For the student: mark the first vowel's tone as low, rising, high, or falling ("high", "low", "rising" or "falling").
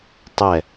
falling